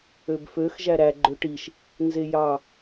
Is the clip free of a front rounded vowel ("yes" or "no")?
no